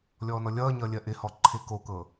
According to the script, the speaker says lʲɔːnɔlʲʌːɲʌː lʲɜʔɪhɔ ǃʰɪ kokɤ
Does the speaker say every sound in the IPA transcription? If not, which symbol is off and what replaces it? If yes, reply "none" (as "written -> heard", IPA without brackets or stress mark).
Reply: none